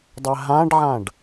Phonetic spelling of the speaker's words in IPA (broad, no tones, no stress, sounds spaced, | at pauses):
dˤ ɛ ɦ ã ɖ ʕ ã ɖ